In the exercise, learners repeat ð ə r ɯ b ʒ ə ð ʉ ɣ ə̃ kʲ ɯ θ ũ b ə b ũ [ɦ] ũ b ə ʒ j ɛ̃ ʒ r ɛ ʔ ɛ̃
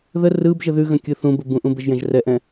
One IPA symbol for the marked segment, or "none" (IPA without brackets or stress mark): ʔ